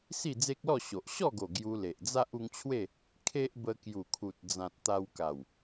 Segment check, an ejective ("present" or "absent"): absent